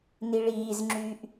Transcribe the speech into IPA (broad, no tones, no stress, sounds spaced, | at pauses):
n i ɭ iː z ŋ͡ǁ yː ʔ